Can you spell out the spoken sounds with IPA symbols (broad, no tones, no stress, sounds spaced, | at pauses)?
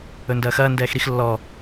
ɵ n d ɐː x ɐː n d ɛː x ɾ i x lː ɔ